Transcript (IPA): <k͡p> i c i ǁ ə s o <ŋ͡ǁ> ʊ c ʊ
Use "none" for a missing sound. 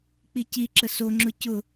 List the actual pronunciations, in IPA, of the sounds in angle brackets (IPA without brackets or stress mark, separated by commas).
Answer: k͡p, ŋ͡ǁ